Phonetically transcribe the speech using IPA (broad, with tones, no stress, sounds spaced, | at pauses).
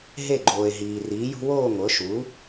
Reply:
ɦ e˥˨ ɡ͡ǃ oː˨ e̯ ɦ iː˨ r iː˩˥ j ṳ˦ w oː˥˨ ŋʷ ɤ˩˥ ʃ u˩˥